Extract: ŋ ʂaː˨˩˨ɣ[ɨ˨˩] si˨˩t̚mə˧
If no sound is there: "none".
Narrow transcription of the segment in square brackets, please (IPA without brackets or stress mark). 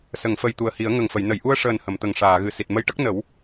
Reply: ɨ˨˩